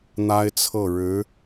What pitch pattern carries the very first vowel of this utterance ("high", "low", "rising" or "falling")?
high